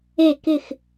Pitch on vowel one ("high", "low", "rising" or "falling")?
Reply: falling